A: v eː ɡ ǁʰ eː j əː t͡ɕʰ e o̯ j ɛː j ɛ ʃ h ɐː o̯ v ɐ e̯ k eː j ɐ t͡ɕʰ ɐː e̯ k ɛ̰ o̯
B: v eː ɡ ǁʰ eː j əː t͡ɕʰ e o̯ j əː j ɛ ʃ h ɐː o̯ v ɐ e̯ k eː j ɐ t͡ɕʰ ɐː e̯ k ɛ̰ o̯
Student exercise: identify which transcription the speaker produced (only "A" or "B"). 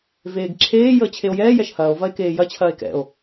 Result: A